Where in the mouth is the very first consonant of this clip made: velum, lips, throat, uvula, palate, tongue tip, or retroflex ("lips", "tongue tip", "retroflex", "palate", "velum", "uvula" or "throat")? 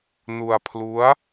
tongue tip